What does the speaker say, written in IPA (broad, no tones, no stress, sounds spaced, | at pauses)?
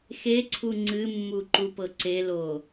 x e ǀʰ u ŋ͡ǀ ɨ mː u ǃ u p ɤ ǀ e l o